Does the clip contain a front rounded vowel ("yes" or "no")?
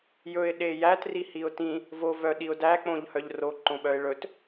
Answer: yes